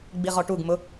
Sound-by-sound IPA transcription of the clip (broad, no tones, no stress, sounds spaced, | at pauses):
ɡ͡b i ʁ ɔ ʈ u ɡ m ʊ